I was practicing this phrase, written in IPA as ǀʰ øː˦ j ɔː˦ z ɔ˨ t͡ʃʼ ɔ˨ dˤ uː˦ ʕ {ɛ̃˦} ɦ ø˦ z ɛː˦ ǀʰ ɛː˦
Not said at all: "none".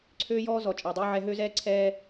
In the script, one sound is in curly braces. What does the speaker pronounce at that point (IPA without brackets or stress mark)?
ɛ˦